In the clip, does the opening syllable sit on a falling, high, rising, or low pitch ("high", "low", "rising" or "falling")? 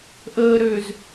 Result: low